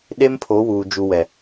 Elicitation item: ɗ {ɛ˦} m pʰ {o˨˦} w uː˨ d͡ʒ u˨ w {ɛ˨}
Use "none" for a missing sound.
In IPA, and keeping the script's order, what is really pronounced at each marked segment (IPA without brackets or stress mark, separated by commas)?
e˦, o˨˦, ɛ˨